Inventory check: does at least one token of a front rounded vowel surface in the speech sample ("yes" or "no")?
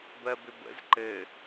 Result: yes